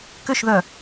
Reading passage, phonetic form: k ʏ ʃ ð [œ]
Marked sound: correct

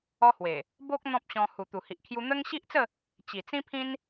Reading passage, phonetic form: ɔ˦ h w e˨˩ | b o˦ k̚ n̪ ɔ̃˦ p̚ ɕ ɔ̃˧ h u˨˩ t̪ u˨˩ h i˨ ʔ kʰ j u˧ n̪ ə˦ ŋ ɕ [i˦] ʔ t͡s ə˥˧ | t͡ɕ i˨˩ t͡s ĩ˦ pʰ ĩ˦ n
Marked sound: correct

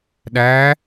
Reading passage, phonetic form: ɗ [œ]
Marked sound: incorrect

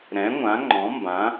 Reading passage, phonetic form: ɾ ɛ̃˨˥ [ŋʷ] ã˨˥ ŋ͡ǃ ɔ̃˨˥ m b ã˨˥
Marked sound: correct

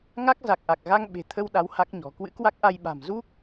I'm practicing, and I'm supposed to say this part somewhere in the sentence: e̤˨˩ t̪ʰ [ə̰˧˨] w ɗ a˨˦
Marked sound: incorrect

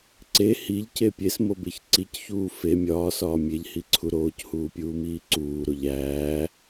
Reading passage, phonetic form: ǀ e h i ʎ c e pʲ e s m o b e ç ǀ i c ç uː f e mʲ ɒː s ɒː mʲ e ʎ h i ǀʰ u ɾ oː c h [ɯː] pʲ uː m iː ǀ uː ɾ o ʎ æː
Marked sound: incorrect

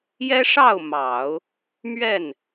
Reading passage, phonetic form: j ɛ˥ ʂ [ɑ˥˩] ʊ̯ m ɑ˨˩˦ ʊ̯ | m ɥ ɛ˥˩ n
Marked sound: correct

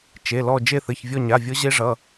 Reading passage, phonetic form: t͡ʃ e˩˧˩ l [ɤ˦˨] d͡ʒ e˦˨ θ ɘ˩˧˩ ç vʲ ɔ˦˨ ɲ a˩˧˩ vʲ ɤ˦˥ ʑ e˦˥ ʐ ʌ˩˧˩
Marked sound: incorrect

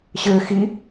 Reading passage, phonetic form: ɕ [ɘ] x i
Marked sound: correct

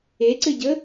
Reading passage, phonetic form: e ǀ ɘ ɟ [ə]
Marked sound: correct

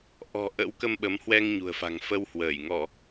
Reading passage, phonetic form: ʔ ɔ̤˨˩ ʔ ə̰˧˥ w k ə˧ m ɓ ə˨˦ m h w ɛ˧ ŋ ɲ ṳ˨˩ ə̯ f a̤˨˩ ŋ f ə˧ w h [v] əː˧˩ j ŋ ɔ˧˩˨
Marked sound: incorrect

